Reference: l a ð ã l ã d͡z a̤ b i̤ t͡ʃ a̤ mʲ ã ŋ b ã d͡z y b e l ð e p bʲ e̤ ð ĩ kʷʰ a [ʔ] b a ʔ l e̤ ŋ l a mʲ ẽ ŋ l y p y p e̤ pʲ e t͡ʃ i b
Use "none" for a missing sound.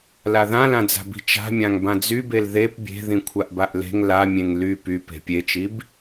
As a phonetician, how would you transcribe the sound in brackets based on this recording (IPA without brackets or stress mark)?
ʔ